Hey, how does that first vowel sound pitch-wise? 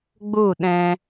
falling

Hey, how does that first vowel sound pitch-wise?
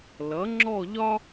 rising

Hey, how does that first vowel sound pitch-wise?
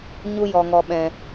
high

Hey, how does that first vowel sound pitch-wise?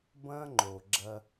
high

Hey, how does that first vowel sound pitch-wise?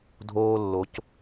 high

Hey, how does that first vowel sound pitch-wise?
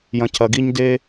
low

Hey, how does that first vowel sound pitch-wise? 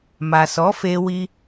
low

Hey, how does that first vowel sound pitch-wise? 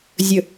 low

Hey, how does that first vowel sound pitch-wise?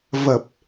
low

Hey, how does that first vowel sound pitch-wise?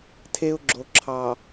high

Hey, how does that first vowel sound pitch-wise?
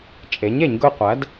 rising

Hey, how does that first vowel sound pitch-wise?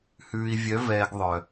low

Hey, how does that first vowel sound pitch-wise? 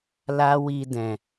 high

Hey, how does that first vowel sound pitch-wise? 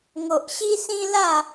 low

